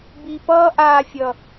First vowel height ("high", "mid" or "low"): high